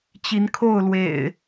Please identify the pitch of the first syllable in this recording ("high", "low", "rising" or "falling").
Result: rising